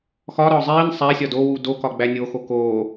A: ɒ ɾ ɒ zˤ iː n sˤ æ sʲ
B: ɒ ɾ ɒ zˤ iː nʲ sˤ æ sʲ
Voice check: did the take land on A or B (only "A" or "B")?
A